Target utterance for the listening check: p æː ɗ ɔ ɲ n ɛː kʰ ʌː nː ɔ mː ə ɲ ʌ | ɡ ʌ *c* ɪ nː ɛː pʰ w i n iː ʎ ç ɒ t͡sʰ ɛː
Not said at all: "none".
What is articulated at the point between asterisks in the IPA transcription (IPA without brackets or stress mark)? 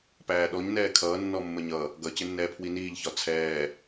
c